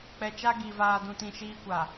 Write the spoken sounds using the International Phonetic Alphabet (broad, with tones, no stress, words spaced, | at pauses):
k͡pɛ˨t͡ʃa˦ ɡi˨ vaː˨dũ˨tĩ˨ ʃiː˦kʷa˨